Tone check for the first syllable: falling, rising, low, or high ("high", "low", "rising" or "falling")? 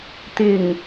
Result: low